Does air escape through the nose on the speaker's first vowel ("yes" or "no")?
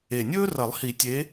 no